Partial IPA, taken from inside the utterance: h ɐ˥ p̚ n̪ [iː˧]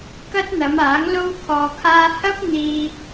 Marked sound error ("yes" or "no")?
no